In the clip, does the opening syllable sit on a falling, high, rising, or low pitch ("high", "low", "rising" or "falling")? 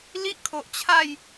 high